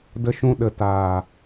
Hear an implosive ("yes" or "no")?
yes